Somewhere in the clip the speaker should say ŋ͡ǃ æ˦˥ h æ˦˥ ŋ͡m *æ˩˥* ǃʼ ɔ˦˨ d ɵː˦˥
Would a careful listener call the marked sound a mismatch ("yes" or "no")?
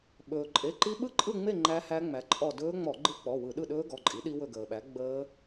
no